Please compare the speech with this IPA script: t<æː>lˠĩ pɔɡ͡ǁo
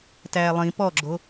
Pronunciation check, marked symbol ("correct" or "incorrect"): correct